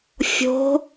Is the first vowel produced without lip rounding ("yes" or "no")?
no